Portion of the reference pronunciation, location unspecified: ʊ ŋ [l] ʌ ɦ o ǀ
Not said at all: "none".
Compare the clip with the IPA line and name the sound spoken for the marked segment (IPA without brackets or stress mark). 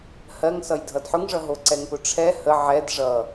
ʐ